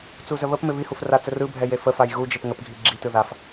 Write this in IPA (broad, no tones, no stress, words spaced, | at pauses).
t͡suzəβəpmɪ βihuf rat͡sərɯbʱɛ jefəfaj ɣud͡ʒɪp ŋəpɡʱi ɡ͡ǁitɯ ðaf